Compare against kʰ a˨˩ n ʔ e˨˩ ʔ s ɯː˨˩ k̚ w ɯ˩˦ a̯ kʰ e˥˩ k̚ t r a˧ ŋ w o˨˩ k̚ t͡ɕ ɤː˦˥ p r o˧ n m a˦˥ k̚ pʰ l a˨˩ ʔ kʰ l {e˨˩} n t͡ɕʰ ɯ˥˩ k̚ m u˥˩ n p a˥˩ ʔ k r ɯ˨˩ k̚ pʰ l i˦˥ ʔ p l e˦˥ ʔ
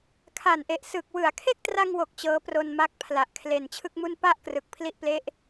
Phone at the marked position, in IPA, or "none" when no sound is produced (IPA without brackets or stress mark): e˨˩